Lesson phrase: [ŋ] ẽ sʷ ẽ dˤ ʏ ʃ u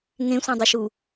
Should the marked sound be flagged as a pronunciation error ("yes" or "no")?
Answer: no